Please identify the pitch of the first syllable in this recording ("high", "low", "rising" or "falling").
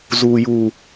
low